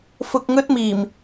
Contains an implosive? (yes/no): no